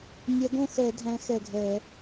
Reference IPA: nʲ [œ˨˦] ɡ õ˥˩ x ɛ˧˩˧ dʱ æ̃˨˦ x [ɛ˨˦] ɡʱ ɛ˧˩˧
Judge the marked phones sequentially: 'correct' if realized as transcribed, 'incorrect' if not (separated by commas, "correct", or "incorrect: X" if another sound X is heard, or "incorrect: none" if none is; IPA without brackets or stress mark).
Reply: incorrect: ɛ˨˦, incorrect: ɛ˧˩